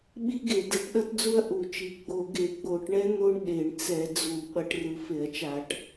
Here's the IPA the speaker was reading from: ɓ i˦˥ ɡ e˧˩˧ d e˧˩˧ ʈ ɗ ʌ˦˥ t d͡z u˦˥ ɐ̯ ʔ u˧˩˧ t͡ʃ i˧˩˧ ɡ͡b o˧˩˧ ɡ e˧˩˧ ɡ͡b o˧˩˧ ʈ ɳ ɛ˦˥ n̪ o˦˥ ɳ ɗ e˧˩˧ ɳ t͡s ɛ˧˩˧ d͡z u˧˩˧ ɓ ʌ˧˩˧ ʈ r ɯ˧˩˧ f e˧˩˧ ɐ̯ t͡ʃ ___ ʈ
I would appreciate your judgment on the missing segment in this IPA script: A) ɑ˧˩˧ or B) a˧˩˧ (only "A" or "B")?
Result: B